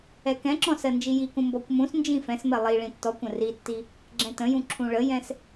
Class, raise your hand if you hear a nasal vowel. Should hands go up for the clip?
yes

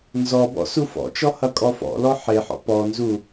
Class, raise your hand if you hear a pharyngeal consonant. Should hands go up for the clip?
yes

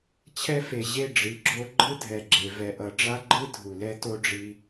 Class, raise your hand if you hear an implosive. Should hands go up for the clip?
no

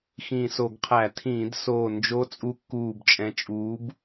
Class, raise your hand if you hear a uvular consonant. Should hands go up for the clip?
yes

